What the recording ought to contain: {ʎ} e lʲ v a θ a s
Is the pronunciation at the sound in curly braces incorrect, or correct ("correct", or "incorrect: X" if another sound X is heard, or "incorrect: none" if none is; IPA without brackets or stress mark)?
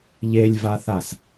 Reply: correct